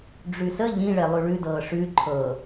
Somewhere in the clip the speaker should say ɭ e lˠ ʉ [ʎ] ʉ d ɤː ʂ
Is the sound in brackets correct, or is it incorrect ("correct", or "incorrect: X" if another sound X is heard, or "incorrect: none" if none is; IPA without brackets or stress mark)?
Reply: incorrect: ɭ